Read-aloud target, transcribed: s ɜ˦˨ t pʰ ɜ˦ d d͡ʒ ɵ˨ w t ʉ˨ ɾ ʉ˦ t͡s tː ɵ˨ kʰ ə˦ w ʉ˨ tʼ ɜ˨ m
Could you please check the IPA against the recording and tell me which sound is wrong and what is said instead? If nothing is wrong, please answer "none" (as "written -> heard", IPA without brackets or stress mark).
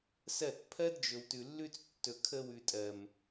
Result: ɾ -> lː